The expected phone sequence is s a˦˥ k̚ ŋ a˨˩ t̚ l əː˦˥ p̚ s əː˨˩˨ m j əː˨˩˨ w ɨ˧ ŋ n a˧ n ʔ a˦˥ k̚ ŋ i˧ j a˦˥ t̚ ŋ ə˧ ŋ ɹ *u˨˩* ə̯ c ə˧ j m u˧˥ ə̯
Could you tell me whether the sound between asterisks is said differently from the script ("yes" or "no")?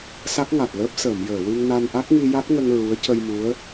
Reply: yes